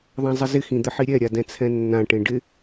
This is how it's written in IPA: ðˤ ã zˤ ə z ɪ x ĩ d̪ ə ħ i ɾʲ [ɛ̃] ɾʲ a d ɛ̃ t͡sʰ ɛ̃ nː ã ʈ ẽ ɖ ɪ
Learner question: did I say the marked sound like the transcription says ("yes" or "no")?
no